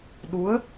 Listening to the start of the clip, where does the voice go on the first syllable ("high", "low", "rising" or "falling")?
rising